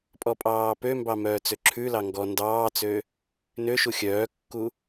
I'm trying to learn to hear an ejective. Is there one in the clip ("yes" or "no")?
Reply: yes